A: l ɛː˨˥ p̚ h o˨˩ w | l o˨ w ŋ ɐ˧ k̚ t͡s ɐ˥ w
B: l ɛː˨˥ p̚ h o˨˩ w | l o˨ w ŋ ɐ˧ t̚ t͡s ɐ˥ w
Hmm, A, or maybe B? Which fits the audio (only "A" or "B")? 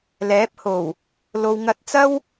B